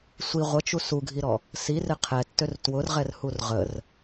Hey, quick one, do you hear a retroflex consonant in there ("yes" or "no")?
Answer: no